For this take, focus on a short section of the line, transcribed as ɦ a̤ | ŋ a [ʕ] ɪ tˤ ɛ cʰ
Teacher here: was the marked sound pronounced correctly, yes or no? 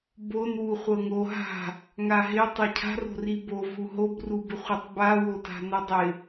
no